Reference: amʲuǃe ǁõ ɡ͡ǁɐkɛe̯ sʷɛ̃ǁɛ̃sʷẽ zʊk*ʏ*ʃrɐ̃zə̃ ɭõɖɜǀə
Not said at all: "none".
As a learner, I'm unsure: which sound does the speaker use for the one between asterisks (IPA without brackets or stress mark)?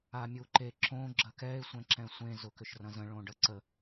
ʏ